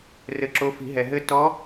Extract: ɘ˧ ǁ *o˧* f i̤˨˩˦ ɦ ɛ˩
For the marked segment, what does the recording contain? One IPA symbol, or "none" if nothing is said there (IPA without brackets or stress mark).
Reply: o˧˥